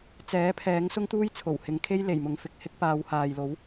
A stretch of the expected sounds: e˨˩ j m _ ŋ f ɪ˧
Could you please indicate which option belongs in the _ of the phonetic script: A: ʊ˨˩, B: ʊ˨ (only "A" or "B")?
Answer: B